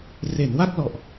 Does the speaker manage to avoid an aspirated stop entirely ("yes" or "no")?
yes